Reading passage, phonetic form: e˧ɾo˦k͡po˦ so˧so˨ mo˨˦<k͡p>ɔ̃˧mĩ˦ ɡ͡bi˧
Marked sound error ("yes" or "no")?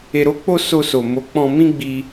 no